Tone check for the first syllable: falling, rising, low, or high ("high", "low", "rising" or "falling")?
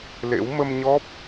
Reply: rising